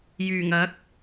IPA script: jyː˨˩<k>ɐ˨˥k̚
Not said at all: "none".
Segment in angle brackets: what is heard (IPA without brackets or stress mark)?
ŋ